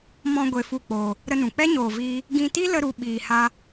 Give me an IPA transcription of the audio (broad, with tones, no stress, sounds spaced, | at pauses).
m ɔ̃˧ ɡʷ e˧ f u˦˨ k͡p oː˧ | ɾ ə˧ n ũ˨ k͡p ɛ˦ ɲ oː˧ v iː˦ | ɡ ĩ˧ t i˦ l ə˦ ɾ u˧ ɓ iː˧ h a˦